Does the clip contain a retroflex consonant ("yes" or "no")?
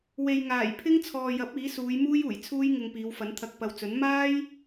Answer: no